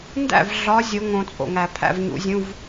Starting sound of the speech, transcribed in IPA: n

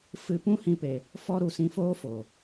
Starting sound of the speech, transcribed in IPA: f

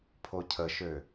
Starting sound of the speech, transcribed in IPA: pʰ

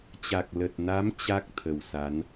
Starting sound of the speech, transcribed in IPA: t͡ɕ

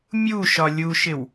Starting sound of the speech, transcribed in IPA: mʲ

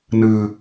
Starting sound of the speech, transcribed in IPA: n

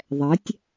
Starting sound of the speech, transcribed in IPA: ðˤ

